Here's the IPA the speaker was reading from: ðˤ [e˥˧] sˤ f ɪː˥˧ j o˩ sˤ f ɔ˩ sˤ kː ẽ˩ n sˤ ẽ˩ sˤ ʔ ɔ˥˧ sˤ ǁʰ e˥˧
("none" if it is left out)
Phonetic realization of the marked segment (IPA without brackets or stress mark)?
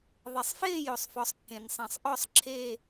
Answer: e˩